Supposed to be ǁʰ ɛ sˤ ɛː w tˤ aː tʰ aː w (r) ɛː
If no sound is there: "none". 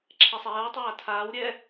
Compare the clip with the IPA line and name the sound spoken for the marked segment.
ɾʲ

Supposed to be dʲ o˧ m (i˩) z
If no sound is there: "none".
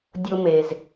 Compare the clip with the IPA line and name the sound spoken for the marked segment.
e˩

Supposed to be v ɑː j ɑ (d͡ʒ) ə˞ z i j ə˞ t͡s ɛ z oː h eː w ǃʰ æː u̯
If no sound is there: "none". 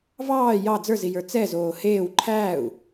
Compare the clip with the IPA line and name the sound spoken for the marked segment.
d͡z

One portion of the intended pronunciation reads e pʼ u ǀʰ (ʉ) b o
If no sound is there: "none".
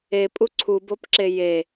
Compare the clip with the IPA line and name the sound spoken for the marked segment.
u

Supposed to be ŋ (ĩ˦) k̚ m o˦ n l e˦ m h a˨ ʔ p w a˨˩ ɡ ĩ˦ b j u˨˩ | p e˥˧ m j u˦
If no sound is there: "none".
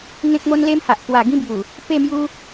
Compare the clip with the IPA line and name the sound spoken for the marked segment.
ẽ˦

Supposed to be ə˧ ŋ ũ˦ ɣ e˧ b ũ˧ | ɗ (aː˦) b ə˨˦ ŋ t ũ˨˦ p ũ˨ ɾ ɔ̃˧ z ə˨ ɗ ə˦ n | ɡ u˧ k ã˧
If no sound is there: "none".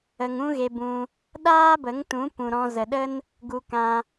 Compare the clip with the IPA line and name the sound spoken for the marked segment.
aː˦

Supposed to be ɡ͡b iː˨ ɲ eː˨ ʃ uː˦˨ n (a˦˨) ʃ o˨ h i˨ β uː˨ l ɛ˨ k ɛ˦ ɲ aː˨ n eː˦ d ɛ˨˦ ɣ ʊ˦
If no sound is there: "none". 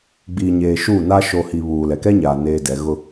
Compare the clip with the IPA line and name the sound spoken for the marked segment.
a˦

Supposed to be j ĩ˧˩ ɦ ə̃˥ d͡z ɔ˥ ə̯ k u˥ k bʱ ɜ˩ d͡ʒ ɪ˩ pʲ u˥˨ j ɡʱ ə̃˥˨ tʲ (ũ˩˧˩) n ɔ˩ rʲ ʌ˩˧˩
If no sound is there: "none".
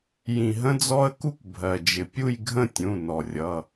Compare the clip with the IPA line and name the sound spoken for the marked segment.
ũ˩˧˩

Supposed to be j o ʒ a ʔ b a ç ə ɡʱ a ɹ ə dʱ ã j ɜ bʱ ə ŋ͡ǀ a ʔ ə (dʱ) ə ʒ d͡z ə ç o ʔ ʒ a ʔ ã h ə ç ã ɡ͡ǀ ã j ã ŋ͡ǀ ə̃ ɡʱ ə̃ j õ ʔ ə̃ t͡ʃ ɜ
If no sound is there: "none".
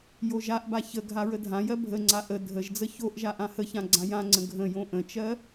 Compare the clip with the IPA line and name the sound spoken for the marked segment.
dʱ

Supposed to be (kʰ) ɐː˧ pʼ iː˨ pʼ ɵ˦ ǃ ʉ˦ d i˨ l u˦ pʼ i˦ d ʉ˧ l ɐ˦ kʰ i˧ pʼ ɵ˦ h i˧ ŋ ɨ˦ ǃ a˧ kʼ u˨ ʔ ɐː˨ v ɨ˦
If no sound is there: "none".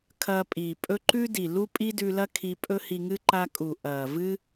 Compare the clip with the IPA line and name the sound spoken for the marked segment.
kʰ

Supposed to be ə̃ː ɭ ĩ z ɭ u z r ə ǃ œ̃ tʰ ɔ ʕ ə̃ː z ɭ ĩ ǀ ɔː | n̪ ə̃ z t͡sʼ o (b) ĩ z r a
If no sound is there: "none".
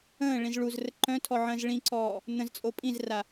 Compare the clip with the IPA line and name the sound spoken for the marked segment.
pʼ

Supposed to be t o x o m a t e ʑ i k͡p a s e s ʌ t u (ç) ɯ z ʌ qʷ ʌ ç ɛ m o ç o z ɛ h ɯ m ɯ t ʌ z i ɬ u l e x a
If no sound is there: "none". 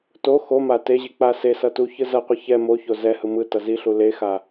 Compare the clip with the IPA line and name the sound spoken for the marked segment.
ç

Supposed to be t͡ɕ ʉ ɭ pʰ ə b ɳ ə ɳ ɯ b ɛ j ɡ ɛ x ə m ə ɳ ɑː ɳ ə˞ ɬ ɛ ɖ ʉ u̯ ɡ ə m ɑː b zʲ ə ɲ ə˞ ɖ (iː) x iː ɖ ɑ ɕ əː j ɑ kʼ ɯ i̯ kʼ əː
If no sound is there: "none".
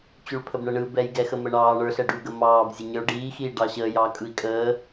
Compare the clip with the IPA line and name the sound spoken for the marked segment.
iː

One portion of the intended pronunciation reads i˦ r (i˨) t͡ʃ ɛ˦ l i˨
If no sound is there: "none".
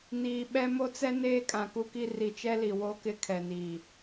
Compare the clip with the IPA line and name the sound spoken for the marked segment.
i˨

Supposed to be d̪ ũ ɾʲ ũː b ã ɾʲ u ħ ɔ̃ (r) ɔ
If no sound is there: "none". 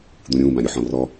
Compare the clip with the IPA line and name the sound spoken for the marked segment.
r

